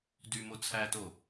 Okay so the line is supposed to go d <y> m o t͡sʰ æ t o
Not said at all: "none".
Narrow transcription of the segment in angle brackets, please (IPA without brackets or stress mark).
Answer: y